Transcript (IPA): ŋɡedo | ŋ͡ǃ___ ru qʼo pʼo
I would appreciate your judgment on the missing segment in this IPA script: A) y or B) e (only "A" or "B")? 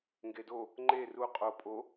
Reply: B